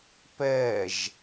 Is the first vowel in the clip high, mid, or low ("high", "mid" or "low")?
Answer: mid